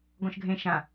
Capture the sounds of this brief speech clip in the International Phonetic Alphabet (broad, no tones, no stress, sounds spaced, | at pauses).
ɡ ɔ̃ ʃ ɡʱ ẽ ʃ ã